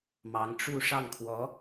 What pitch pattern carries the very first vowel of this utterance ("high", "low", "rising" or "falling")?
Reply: rising